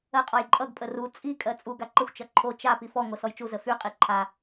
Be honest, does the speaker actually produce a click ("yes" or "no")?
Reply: yes